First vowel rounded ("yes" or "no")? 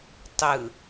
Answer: no